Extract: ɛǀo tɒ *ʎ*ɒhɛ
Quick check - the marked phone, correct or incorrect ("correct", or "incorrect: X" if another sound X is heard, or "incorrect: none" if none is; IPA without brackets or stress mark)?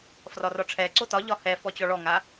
correct